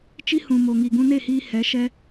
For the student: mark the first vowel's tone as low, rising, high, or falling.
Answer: high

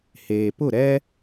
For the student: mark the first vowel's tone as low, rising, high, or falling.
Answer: low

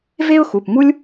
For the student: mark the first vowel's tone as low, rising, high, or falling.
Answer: high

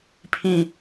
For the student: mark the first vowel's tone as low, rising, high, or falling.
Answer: low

